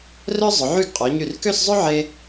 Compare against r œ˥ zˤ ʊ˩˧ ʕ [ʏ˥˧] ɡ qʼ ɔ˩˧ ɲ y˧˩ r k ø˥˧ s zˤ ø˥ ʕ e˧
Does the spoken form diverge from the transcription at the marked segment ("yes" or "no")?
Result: yes